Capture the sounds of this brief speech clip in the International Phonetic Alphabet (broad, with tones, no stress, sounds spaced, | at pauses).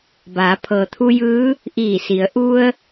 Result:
b aː˩˧ pʰ ɤː˩ t̪ʰ u˧ j ɯː˧˥ | ʔ iː˧˩ s i˩˧ ə̯ ʔ u˧ ə̯